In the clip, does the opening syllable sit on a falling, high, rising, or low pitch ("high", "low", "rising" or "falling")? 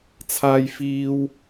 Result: high